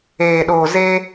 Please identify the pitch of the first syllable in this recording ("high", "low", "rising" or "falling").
low